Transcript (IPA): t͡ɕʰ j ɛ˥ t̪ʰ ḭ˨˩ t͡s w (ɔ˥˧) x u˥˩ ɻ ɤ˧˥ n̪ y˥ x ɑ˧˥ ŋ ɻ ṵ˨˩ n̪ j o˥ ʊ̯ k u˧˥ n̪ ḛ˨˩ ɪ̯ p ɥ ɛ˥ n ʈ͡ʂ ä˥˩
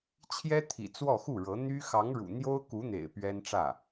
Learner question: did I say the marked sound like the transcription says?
yes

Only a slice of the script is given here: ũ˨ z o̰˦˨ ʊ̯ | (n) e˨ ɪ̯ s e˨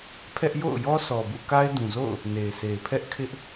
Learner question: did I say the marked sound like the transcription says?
yes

